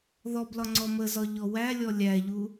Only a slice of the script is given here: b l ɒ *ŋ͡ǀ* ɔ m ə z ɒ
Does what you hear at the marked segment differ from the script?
no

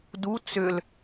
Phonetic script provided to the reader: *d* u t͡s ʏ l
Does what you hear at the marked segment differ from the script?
no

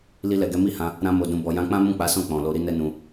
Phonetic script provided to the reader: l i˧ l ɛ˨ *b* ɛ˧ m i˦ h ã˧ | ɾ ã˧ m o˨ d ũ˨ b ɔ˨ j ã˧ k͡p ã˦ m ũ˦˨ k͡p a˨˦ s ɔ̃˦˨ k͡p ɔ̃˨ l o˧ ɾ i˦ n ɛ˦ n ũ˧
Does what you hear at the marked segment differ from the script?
yes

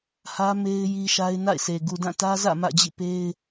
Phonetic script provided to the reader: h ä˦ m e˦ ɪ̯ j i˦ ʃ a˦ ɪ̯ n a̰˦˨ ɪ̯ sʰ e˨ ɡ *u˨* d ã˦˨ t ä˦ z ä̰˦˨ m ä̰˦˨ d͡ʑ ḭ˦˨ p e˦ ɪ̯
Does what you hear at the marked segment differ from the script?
no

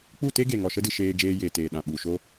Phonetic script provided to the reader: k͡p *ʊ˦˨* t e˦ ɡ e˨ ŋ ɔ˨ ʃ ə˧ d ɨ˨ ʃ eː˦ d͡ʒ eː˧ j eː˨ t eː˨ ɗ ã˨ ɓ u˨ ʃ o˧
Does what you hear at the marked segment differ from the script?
yes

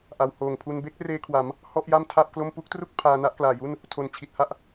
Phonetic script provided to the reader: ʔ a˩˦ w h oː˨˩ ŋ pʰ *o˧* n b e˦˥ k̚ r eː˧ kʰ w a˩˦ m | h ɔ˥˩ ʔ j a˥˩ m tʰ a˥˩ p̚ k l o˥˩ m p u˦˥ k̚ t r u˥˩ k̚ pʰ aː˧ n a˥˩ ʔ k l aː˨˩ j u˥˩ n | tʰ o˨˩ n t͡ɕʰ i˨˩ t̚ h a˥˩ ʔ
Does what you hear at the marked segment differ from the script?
yes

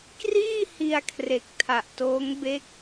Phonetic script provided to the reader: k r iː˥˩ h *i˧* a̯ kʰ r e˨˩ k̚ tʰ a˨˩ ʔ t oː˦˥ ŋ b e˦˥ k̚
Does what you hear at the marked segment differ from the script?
no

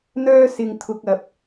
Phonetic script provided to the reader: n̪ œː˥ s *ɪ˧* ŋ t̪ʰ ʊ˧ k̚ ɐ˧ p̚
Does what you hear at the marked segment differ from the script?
no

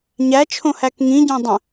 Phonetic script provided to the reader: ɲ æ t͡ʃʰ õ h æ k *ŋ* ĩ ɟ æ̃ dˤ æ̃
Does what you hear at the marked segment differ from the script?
no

